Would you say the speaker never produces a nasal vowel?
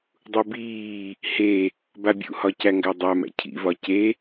yes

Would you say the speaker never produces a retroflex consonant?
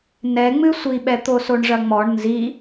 no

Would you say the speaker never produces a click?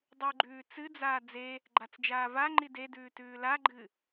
no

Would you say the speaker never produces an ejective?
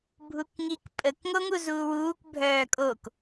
no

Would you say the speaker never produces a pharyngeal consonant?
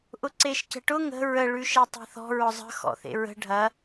yes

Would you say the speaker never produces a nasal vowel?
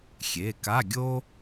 yes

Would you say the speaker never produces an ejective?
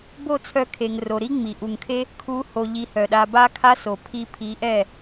yes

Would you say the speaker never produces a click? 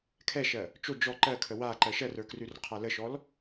no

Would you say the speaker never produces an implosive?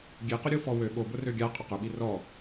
no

